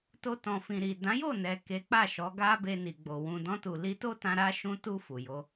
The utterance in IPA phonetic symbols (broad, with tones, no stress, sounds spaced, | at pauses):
t o˧ t ɔ̃˨ f ĩ˨ ɾ i˨ d ã˨˦ j o˦˨ n ɛ˨ k e˨˦ k͡p a˦˨ ʃ ɔ˨˦ ɡ a˧ b e˧ n i˨ ɡ͡b o˨ w ũ˨ d ɔ̃˧ t u˨ l i˧ t o˦ t ã˧ ɾ a˦ ʃ ũ˧ t u˧ f u˨ j o˧